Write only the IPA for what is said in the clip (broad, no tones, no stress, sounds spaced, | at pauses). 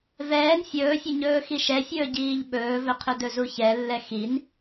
v ɛː n fʲ ɵː fʲ ɵ ɲ ɵː x i ʃ ɛ fʲ ɵː ɟ iː ʎ ɓ ɵː v ɵ qʰ ɵ d ɵ z u ç ɛ lː ɛ x i n